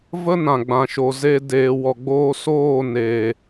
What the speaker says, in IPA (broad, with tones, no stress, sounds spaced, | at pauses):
v ə˦ n ã˨ ɡ͡b ã˨ ʃ o˨ z e˨ d eː˨ w ɔ˨ ɡ͡b oː˧ s oː˦˨ n eː˨